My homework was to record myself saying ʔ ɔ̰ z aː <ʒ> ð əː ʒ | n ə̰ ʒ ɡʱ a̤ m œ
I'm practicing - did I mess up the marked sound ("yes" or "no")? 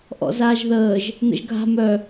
no